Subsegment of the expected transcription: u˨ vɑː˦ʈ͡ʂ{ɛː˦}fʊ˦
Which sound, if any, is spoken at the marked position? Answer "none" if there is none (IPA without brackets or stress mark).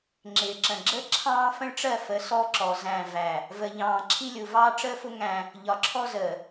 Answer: əː˦